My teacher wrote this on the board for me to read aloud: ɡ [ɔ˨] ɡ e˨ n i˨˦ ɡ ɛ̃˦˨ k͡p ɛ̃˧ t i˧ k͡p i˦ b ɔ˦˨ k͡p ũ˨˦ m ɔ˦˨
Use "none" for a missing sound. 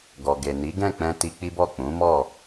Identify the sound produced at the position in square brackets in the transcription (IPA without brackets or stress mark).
ɔ˨